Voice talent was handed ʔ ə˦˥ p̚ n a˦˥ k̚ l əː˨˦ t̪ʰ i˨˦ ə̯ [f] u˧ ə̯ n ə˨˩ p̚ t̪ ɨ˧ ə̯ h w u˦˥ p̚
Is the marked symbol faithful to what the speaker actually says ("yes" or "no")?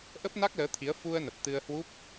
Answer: yes